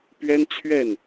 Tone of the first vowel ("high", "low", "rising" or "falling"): high